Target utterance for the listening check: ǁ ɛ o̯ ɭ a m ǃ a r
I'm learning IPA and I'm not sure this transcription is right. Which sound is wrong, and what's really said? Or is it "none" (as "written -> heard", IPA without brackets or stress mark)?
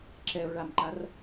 none